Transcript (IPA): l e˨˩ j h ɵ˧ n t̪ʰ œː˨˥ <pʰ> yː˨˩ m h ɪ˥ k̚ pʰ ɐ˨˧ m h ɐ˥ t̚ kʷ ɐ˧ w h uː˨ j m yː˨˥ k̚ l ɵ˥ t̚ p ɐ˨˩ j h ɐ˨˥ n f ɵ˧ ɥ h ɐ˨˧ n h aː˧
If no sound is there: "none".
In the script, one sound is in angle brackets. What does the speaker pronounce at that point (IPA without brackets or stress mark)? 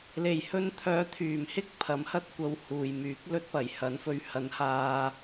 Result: t̪ʰ